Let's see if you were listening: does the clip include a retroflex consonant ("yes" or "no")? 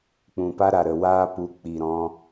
no